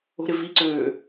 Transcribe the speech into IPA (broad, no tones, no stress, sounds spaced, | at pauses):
o̤ ɾ ɪ v i ǀ øː